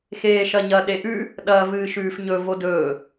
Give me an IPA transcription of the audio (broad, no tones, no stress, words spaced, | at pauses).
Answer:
xeːʃɐɲɐ ɗeʔʉ | ɗɐːvɨːʃʉːfɲɵ vodɵː